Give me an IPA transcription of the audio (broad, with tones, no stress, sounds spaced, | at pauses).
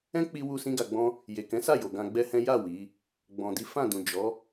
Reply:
ɛ̃˦ k͡p i˧ w u˧ s ĩ˦ ɡ a˧ ɡ͡b ɔ̃˦ | j e˨ k ɛ̃˨˦ s a˦˨ j o˨ ɡ ã˧ ɡ͡b ɛ˦ h ɛ̃˦ j a˦˨ w i˨˦ | ɡ͡b ɔ̃˨ d i˨˦ f ã˦˨ d ũ˨ d͡ʒ ɔ˨˦